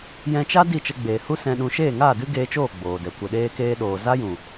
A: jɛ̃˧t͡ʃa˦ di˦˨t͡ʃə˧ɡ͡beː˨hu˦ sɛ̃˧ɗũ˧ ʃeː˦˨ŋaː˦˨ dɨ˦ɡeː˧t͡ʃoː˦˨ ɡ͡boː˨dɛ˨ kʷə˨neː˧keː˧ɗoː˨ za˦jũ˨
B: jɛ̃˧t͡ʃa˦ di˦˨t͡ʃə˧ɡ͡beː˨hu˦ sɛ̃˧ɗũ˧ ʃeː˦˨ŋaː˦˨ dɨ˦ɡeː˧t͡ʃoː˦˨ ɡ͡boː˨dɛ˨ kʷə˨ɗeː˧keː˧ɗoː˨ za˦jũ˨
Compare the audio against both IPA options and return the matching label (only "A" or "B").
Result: B